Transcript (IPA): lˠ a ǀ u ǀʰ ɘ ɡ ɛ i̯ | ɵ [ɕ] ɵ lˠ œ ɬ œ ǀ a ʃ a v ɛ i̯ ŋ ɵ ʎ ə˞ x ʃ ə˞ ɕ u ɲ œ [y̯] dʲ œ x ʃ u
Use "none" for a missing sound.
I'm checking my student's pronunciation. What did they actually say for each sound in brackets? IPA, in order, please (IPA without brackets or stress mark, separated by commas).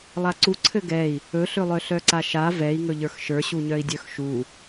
ɬ, i̯